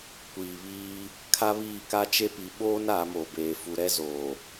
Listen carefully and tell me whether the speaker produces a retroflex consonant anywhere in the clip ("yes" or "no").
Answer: no